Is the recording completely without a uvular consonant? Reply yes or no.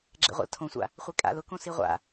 no